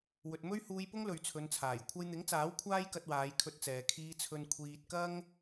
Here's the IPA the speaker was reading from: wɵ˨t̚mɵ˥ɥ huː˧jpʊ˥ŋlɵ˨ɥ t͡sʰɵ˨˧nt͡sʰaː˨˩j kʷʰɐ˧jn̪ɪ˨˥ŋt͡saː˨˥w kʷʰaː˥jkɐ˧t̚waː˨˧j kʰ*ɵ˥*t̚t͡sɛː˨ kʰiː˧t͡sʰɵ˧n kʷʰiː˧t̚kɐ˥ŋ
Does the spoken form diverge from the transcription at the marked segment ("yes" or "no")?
yes